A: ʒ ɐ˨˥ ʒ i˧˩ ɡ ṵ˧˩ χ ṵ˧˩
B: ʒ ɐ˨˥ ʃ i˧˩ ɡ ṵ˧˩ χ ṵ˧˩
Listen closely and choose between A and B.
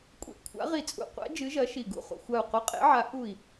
B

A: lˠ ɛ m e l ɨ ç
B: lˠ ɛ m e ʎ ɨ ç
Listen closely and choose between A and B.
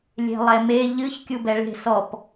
B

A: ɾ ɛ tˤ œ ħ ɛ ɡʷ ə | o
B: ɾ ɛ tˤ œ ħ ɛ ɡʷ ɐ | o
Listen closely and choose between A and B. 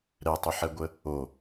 A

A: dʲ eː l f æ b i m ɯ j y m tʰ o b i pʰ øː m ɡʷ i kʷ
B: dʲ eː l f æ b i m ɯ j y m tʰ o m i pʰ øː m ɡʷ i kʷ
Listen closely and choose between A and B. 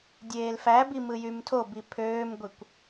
A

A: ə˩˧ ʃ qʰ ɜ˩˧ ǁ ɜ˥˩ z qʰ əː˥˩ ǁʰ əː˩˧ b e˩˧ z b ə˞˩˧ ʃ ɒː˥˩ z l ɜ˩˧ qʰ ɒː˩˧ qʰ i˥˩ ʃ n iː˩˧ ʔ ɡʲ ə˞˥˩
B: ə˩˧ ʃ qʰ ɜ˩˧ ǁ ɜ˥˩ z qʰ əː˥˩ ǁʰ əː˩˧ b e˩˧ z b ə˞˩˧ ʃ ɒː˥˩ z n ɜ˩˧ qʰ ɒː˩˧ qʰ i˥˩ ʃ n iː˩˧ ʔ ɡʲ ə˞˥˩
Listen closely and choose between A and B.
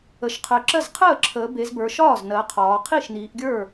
B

